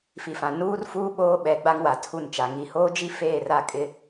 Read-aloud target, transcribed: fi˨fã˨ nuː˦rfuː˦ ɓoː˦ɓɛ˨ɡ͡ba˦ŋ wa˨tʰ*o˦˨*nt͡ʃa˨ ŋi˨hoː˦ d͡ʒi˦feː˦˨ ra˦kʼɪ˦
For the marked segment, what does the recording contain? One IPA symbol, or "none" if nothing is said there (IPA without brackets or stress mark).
u˦˨